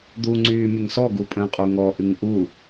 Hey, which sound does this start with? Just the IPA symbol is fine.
d̪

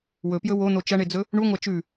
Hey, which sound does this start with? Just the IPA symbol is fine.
w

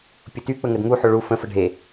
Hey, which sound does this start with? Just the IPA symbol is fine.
pʲ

